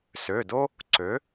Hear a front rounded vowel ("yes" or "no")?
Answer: yes